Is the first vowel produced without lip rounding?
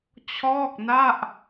no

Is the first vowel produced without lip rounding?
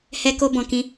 yes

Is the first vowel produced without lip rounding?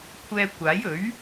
yes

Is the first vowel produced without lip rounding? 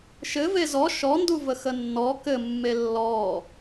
yes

